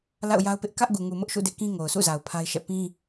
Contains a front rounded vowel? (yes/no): no